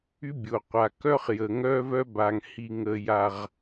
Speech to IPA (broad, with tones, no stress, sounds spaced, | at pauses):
y˦ bʲ o˨ qʷ a˨ k œ˦ χ j ə˨ ŋ œ˦ v œ˦ b a˨ ŋ h i˨ ŋ ə˨ j a˨ ʁ